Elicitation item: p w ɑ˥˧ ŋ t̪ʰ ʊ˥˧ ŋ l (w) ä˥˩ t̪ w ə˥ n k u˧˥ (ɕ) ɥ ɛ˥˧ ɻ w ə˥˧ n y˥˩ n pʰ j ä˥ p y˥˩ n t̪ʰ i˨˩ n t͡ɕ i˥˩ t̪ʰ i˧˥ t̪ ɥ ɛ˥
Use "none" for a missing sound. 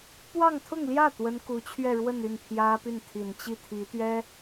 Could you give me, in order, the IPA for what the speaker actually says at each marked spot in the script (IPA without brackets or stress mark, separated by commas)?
j, t͡ɕʰ